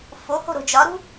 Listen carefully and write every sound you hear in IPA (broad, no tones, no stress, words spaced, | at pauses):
foho̤ ɾo̤d͡ʒɒɾṳ